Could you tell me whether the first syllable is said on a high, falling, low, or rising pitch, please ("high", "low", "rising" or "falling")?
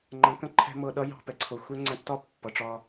rising